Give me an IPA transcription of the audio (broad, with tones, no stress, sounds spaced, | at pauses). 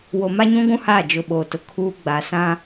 w o˨ m a˦ ɲ ũ˦ ɡʷ ũ˦ h a˦˨ d͡ʒ ʊ˨ ɓ oː˨ t ʊ˨ kʰ uː˦ ɡ͡b a˨ s ã˦